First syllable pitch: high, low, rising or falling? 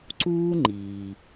high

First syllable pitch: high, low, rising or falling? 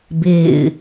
falling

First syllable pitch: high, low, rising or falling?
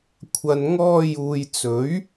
low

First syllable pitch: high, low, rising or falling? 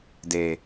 low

